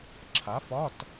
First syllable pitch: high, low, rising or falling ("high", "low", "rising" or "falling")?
rising